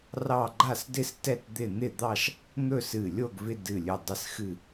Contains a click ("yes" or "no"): yes